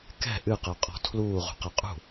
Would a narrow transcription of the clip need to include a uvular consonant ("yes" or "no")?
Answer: yes